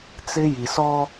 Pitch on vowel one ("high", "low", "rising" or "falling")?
high